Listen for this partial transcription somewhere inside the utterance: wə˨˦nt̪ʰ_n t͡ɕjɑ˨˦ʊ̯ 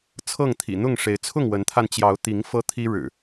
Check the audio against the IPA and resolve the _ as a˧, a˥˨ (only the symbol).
a˧